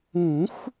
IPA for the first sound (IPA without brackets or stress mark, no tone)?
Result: ũ